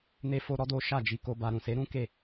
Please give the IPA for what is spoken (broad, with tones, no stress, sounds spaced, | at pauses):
n e˦ f o˦ ɾ ɔ˦ d o˦ ʃ a˦˨ d͡ʒ i˧ k o˧ b a˧ ɾ ũ˨ s e˨˦ ɾ ũ˦ k e˦˨